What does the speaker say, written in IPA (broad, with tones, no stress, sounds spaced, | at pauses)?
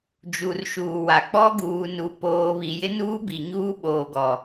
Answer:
d͡ʒ u˨ r ʃ uː˨ w a˨ k͡p ɔ˦ ɡ uː˨ n u˨ p oː˨ β i˨ j ɪ˦ n uː˦ b i˨ ɲ uː˦ ɓ oː˨ ɡ ɔ˨